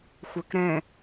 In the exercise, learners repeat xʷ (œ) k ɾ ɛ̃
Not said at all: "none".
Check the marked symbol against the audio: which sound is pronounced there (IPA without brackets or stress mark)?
œ